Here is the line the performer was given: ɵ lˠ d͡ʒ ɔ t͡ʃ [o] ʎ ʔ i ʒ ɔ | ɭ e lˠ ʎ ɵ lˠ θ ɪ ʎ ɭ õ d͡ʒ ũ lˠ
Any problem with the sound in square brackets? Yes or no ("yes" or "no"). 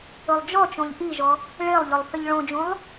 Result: yes